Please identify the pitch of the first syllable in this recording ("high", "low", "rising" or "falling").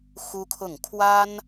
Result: high